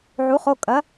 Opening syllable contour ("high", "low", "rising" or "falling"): rising